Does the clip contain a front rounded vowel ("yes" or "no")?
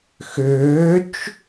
yes